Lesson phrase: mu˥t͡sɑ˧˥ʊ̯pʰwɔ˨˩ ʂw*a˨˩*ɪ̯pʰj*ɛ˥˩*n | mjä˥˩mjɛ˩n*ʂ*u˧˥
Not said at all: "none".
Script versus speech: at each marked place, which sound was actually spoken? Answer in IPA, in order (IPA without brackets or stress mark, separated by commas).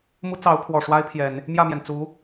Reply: a˥, ɛ˨˩˦, t͡s